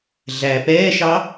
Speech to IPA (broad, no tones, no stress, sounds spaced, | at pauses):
ɮ æ p ɛː ʃ ɑ